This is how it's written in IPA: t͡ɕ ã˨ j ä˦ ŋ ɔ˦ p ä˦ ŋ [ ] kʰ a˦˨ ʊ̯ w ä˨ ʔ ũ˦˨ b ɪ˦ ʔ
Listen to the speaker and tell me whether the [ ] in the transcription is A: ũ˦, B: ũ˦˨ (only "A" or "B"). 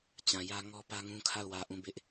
A